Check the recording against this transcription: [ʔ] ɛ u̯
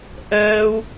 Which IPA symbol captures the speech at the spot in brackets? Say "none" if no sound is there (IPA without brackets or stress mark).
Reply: ʔ